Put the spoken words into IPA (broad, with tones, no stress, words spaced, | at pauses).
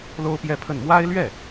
lo˥ʊ̯pjɛ˥˧pʰə˥˩n mwa˥ɪ̯lɥɛ˥˩